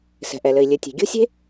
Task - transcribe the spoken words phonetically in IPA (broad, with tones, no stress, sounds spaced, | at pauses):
s ɛ̤˩ ʔ ɛ˩ l ɘ˩ i̯ lʲ ɘ˩ tʲ e̤˩ ɡʲ o̤˥ sʲ e̤˥